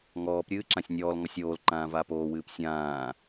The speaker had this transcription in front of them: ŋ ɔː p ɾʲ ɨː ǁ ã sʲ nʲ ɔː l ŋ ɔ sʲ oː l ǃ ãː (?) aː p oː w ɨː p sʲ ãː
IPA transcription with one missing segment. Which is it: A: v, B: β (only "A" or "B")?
A